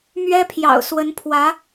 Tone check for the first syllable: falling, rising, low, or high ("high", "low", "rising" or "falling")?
high